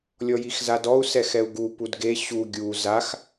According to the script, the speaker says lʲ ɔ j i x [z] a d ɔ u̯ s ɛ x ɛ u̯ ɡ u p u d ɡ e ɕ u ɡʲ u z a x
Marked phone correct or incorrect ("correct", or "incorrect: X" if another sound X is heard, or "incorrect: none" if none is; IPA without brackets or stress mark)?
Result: correct